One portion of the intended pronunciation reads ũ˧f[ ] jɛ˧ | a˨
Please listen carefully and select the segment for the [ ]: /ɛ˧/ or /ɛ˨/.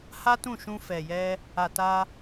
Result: ɛ˨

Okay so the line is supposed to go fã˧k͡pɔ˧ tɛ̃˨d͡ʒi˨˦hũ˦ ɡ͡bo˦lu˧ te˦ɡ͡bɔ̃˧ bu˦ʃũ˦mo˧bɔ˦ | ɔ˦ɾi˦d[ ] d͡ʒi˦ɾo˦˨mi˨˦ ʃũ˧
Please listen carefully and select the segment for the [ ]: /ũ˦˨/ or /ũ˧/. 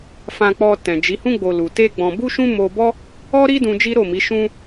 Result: ũ˧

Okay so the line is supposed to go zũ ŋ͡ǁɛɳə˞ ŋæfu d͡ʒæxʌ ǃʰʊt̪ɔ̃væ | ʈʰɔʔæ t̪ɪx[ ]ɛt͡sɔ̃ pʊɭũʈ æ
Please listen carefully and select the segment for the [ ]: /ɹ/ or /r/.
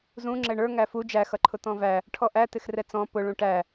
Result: r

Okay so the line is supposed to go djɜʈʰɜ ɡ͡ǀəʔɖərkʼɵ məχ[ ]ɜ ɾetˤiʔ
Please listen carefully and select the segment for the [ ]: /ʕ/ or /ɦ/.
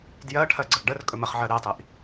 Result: ʕ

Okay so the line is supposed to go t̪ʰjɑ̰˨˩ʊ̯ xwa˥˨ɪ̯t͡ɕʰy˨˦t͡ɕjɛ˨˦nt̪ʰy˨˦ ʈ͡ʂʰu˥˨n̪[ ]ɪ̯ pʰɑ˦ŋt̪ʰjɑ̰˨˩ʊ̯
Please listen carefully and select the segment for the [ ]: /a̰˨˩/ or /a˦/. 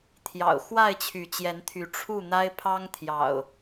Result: a˦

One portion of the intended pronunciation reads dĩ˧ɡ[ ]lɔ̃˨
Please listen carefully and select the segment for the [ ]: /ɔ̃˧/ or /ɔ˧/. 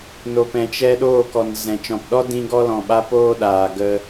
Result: ɔ˧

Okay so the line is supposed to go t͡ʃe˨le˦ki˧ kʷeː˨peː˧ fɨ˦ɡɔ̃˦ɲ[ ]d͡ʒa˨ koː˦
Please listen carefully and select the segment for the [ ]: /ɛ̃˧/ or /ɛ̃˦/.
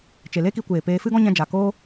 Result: ɛ̃˧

